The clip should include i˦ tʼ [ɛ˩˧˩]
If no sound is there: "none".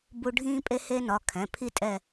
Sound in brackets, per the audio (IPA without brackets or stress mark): ɛ˦˨